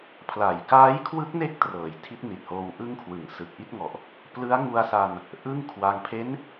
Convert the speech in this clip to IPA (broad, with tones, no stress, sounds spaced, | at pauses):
pʰ l a˨˩ j k aː˦˥ j kʰ w ɯ˦˥ k̚ n e˥˩ k̚ t r ɤː˩˦ j tʰ i˦˥ t̚ n i˨˩ t̚ h oː˧ w ʔ ɯ˥˩ ŋ kʰ w ɯ˩˦ ŋ s ɯ˨˩ k̚ ʔ i˥˩ t̚ ŋ ɔ˨˩ ʔ | p l ɯ˦˥ a̯ ŋ u˧ a̯ s a˧ n | ʔ ɯ˥˩ ŋ kʰ w a˧ ŋ pʰ e˦˥ n